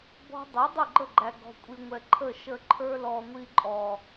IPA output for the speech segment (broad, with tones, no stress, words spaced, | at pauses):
bɔ̤˦ dˤɛ˨˦dˤʊ˦˨ɡ͡ǃə˦˨ɡ͡ǃæ˨ ɡɔ̤˨kʷʼi˨ŋʷɛ˨ ǃʰə˦˨ ʃə˧ǃʰə˞˦ lɔ˨ŋʷi˧ǃʼɔ˨